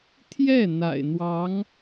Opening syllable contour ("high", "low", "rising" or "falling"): falling